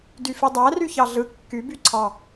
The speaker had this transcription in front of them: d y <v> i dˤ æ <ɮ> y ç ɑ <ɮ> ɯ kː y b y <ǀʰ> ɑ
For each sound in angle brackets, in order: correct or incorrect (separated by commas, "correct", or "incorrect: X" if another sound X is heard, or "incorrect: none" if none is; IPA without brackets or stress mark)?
incorrect: f, incorrect: r, correct, correct